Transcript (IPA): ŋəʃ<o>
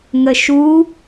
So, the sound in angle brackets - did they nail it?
no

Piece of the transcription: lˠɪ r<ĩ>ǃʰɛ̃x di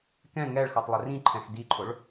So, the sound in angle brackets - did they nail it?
yes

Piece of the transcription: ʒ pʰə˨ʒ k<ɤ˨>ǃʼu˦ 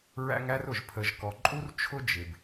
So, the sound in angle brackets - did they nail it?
no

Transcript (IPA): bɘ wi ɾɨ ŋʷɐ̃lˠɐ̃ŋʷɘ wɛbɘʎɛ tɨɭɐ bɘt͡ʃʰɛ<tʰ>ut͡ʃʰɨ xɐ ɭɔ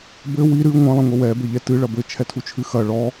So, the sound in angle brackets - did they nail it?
yes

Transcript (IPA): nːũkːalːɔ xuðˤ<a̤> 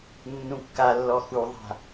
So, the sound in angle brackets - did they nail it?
yes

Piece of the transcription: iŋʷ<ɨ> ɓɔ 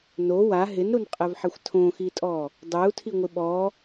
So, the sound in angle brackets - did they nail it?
no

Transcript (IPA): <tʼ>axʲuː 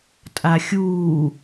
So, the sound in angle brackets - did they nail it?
yes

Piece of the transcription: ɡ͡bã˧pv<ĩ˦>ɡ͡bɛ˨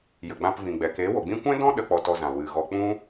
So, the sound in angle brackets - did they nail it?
no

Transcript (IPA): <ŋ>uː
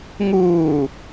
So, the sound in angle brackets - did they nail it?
yes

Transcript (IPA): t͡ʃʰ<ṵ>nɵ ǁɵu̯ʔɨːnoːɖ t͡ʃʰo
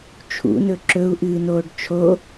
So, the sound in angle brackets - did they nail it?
yes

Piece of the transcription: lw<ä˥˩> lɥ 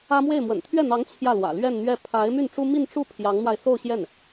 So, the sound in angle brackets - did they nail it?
no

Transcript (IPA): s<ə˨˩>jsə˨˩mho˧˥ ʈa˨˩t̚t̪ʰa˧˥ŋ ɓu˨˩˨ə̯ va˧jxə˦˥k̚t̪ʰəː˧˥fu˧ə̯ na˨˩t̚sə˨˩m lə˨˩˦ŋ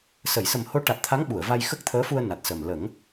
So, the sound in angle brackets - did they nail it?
no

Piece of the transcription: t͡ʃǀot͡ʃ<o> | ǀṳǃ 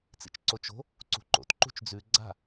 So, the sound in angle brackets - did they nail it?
no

